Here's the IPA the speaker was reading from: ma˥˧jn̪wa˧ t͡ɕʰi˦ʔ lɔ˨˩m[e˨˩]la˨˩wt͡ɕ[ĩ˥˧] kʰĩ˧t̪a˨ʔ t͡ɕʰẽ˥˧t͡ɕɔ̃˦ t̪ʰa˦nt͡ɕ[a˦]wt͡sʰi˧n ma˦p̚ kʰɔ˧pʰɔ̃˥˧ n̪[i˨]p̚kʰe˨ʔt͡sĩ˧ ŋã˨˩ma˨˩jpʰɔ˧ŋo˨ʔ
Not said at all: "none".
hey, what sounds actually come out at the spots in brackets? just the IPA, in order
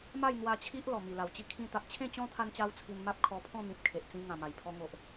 i˨˩, i˥˧, a˦, ĩ˨

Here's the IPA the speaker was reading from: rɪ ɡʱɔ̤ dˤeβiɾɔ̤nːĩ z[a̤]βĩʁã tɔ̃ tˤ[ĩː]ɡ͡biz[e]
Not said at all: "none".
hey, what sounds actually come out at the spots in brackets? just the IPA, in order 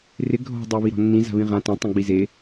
a̤, ĩ, e

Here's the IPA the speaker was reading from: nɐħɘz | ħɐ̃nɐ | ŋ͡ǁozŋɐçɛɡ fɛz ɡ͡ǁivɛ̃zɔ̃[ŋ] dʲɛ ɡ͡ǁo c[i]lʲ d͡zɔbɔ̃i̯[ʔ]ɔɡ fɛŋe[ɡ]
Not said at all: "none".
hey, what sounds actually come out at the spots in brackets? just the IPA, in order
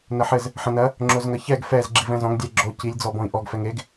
ŋ, i, ʔ, ɡ

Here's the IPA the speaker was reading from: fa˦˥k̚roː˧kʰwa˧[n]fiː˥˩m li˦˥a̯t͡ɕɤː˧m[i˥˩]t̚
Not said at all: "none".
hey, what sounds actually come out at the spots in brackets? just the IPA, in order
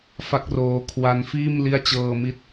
n, i˦˥

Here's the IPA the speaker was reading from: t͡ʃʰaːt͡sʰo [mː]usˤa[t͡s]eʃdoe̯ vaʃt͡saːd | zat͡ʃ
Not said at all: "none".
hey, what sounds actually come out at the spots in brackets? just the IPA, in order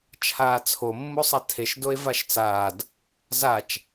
mː, tʰ

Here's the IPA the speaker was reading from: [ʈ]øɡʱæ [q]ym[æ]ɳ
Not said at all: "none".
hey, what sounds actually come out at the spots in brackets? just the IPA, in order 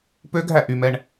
p, ʔ, ɛ

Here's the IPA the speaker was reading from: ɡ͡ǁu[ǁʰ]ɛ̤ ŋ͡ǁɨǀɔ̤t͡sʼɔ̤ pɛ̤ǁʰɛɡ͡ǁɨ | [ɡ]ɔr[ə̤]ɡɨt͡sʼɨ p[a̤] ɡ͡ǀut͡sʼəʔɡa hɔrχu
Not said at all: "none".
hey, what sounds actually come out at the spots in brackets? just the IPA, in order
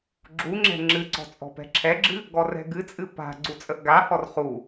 ŋ͡ǁ, ɡ, ɛ̤, a̤

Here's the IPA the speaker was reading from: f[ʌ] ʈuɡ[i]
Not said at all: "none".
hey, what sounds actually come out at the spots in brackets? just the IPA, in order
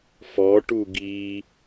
ɔ, i

